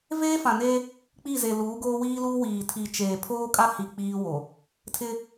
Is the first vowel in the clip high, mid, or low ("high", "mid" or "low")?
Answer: mid